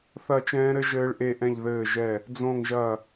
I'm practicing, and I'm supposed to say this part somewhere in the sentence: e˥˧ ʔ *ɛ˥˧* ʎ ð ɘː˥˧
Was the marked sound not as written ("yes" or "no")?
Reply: yes